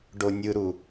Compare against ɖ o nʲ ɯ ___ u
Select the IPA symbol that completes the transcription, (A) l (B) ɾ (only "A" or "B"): B